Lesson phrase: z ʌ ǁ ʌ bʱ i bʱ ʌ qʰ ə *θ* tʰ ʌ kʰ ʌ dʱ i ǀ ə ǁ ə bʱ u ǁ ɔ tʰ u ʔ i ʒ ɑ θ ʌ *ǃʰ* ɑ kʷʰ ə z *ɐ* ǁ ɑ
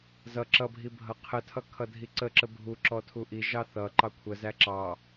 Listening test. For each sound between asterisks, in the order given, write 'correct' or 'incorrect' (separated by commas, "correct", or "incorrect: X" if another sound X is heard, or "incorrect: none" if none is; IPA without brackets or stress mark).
incorrect: none, incorrect: ǃ, incorrect: æ